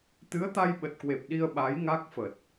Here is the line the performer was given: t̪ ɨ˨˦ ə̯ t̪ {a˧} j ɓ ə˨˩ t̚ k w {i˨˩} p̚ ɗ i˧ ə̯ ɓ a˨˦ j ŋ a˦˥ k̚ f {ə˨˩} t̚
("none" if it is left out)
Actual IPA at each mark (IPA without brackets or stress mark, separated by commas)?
a˧, e˨˩, ə˨˩